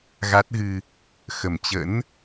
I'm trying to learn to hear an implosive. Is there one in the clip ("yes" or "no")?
no